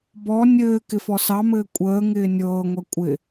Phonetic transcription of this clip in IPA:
b ɔ nʲ ɘː k ɪ f ɔ s ɑ m ɘː kʷʼ əː ŋ ɪː nʲ ɤː ŋʷ ɛ kʷʼ ɪ

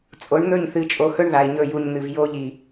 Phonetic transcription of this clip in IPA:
t͡sʼ o˨˦ ɳ n̪ ɵ˦˨ ɲ θ ɨ˨ t͡ʃʼ o˨ h ɵ˦ ɳ ð a˨ i̯ ɲ ɵ˦˨ j u˨ ɲ n̪ ɨ˨ v j o˦ ʎ i˨

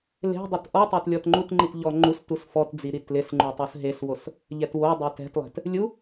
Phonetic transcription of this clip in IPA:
l e̤ dˤ o t ʔ ɔ tˤ a t lʲ ɔ t ŋ͡ǃ u t ŋ͡ǃ i t ʎ ɔ ŋ͡ǃ u s t u s f ɔ t d͡z i ɾ i t l ɪ s ŋ͡ǃ u tˤ o s ɦ e s w o s | ʎ ɛ t w o dˤ e t ɛ̤ t lˠ ɛ̤ t | lʲ u

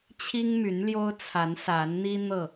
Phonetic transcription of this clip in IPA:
t͡ɕʰ i˦ ŋ m y˨˦ n l j o˦ ʊ̯ t͡sʰ a˨˦ n s a˨˦ n n̪ i˦ n̪ ɤ˥˨

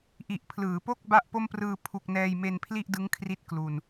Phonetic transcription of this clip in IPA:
ʔ i˨˩ ʔ pʰ l ɯː˩˦ p o˥˩ k̚ b a˥˩ ʔ p o˥˩ m p r ɯː˧ pʰ u˥˩ k̚ n ɛː˧ j m e˧ n pʰ l i˥˩ ʔ d ɯ˦˥ ŋ kʰ r i˦˥ t̚ k l u˧ n

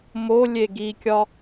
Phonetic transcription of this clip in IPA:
m o lʲ e ɡ i kʲ ɒ

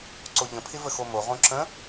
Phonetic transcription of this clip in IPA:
ǀ o ʎ ə̃ pʰ ɪ v ə x o m o ʁ õ ǁ ə̃

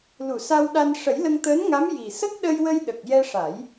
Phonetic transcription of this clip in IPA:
l u˨˩˨ s a˧ w ɗ a˧ n ʂ ə˨˩˦ j l ə˧ ŋ t̪ əː˧˥ n ŋ a˧˥ m j i˨˩ s ə˦˥ k̚ ɗ ə˧ j w ə˧ j ɗ ə˨˩ k̚ j ɛ˧ ʂ a˨˩˦ j

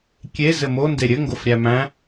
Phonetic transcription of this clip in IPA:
kʲ e z ɘ m o n d e ɾʲ ɘ ŋ ɡ o f ɾʲ æ m æ̃

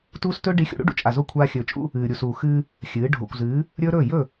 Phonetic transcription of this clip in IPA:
t uː˦ s t ɵː˦ ɖ i˨˦ xʲ ṵ˨ ɽ ṵ˦ ɖ ṵ˨ t͡ʃʼ a˨ z o˦˨ kʷʰ aː˦ xʲ ɵː˨ t͡ʃʼ ṵ˦ | ɨː˨ ɾʲ u˨ s uː˨ x ɨː˦ | xʲ ɨː˨˦ ɖʱ o̰˨ kʷ z ɨː˨˦ | ɾʲ ɵː˦ ɾ ɵː˦˨ j ɵ˦˨

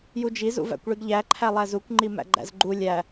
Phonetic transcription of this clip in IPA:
j u d͡ʒ i z ṵ v æ̰ kʷ ɭ i ɡ ʎ æ ǃʰ æ lˠ æ z u kʷ ŋ͡ǃ i m æ̰ ɡ͡ǃ æ̰ z ɡ͡ǃ u lʲ æ

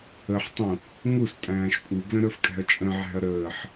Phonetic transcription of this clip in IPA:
ə ħ tˤ ũ | ŋ u s tʼ æ̃ː ʃ pʼ u ɡ l ə̃ ɾ ə˞ f kʼ æ̤ ɐ̯ t͡ʃʼ ə̃ ʕ æ̤ ɐ̯ ɾ əː ħ

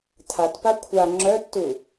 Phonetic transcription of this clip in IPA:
tʰ a t p a kʷʰ a ŋ͡ǁ œ tː u

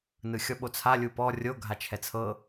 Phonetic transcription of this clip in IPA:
n ɯ xʲ ɔ ɓ o t͡sʰ a lʲ u p ɔ rʲ o ɡʱ a t͡ʃʰ ɛ t͡sʰ ɤ

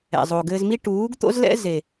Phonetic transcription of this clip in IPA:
ɛ̰˨ zˤ o˨ ɡ ɘː˧ z m i˦ ʈ uː˨˦ ɡ t̪ o̰˦ z l ɛ̰˦ z e˨

